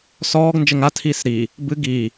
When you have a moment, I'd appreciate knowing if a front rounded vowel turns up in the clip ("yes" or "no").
no